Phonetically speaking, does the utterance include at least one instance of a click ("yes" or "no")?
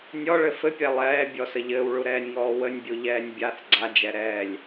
yes